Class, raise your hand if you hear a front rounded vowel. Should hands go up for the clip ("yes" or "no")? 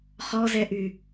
yes